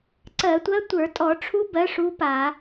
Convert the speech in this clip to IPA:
ǀ ɜ˧˩˧ tʷ ɜ˧˥ tʷ ə˞˧˩˧ tʼ ɔ˧˩˧ ʈ͡ʂʰ u˧˥ b ɜ˧˥ ʂ u˧˥ p a˧˩˧

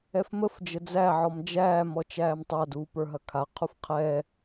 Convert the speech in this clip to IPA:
ɛ f m ə f d͡ʒ ə d͡z æ ʕ ɔ m d͡ʒ æː m ɔ t͡ʃ æː m tˤ a d uː p ə˞ ɦ ɐ kʰ a qʰ u f qʰ ɛ

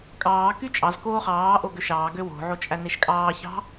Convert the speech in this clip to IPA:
kʼ ɑː k y t͡ʃʼ ɑ z k oː χ ɑː ʔ o ɡ ø ʃ ɑː ɡ ø w o̤ ʕ o t͡ʃʼ æ n e ʃ kʼ ɑː ç ɑ̤

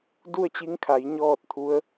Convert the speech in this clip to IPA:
d u˥˨ ə̯ t͡ɕ i˧˥ ŋ kʰ a˩˧ j ɲ ɔː˥˨ t̚ t̪ʰ u˧˥ ə̯

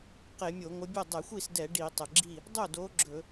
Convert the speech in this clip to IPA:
q e˧˩˧ mʲ o˧˩˧ ŋʷ ə˨˦ bʲ o˥˩ dˤ ɛ˧˩˧ xʷ i˥˩ s d ɛ˧˩˧ ɖ i˧˩˧ tˤ ə˩ ɡ͡ǁ i˥˩ | dˤ o˥˩ d o˨˦ ɡ͡ǁ ɵ˧˩˧

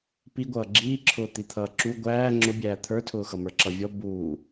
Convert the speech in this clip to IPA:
p i ɡʷ ʌː ɡ͡ǁ iː ǁʰ ʊː t̪ i t̪ʰ ʌː ǁ u ɡʷ æː ŋ͡ǁ ʊ bʲ æː t̪ʰ ə˞ tʰ ʊː x ʌ m ə˞ ǁ ʌ vʲ ɔ b uː

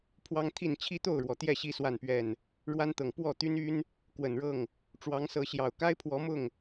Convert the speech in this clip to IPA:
pʰ w ɑ˦ ŋ t̪ʰ i˥˨ n t͡ɕʰ i˦ t̪ o˥˨ ʊ̯ ɻ w ɔ˩ t̪ j ɛ˥˨ ɕ i˦ s w a˥˨ n p ɥ ɛ˥˨ n | ɻ w a˦ n t̪ ɤ˨˩ ŋ p w ɔ˥˨ t̪ y˦ n y˦ n | k w ə˨˩ n ɻ ɤ˥˨ ŋ | ʈ͡ʂ w ɑ˨˦ ŋ s ɤ˨˦ ɕ j ɑ˨˩ ʊ̯ k a˦ ɪ̯ pʰ w ɔ˨˦ m ʊ˥˨ ŋ

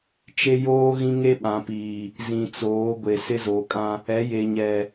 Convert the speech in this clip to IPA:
t͡ʃ e˦ j oː˦ ɣ ĩ˦ ŋ e˦ ɓ ã˨ p iː˨ | z ĩ˨ t͡s oː˨˦ ɡʷ e˨ s ɪ˦ z oː˨ kʼ ã˦ | ɛ˨˦ j e˨ ɲ ɛ˨

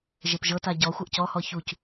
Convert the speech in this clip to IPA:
ʒ e p ʒ ɤ t a ɟ ɔ xʷ ɤ ʔ c ɔ h ɔ ç u c

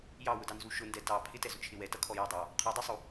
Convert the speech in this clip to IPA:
j ɑ w ʊ d ɑ n z u ʃ ʊ n d ɛ t ɑ pʰ ɪ t ɛ z ʊ t͡ʃʰ ɪ w ɛ t ʌ kʰ ɔ j ɔ dˤ ɑ | qʰ ɔ dˤ u sˤ u

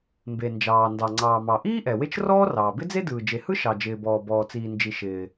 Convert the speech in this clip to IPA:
m b e˩ n d͡ʒ ɑː˩ n d ɑ˩ ŋ͡ǀ ɑː˩ m ɑ˩ ʔ iː˥ ʔ ɛ˩ w e˥ t͡ʃ r ɔː˥ r ɑː˩ b ɪ˥ d͡z e˥ d ɯː˩ d͡ʒ e˩ h ɯ˥ ʃ ɑ˩ d͡ʒ ɪː˩ b ɔː˩ b ɔː˩ t͡s iː˩ n d͡ʒ i˩ ʃ ɪː˩

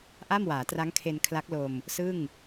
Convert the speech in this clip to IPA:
ʔ a˥˩ m w aː˩˦ t r a˦˥ ŋ kʰ e˧ n kʰ l a˦˥ k̚ l o˧ m | s ɯ˥˩ ŋ

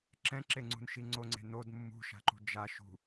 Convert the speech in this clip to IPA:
ǁ ɛ̃ ǁ e ŋ͡ǀ ṳ n ʃ i ŋ͡ǀ o ŋ͡ǀ e̤ n o d mː ṳ ʃ a̤ ǃ ṳ d͡ʒ a ʃ ṳ

